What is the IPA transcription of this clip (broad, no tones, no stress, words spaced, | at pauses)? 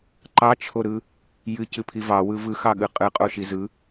ǃɑt͡ʃʰoɾɯ | jɨcɨpʰi vɑwɯ vɯxɑɠɯ qʼɯqʼoʃi zɯ